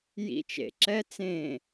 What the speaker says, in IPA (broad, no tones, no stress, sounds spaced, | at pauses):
j ḭ t͡ʃ ḛ ǁ ɛ t͡s ẽ